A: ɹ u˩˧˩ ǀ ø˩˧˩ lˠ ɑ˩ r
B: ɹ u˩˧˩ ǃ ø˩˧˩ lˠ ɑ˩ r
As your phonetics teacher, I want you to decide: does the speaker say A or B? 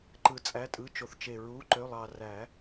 B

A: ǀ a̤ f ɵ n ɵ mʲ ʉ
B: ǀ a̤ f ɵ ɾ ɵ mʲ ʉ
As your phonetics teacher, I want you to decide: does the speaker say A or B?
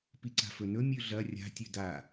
A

